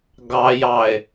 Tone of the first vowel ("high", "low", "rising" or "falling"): low